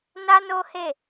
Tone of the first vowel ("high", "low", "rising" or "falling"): high